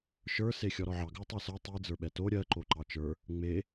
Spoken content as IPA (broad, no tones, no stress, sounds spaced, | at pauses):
ʃ ə˞ s e xʲ ɔ ɾ ɔ ʕ ɑ ɡ ə˞ tˤ ɑ s ə˞ tˤ i d͡z ə˞ ɓ ɛ t o ɾʲ ɜ ǃ o ǃ ɑ t͡ʃ ə˞ | ŋ͡m e